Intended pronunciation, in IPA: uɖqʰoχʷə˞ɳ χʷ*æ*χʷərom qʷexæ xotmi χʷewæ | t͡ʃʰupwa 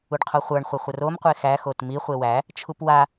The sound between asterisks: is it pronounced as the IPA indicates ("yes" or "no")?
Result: no